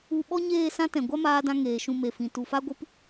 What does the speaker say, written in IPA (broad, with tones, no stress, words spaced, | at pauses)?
u˧ ɓɔ˦ɲeː˦˨sã˦tɛ̃˨ ɡʷa˦maː˧dã˧ ŋeː˨ʃũ˧me˨fĩ˨ tu˨fa˦ɡʷɨ˦p